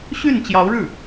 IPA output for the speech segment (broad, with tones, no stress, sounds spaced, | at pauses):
ɕ y˥˩ n t͡ɕ j ɑ˧˥ ʊ̯ ɻ ɻ̩˥˩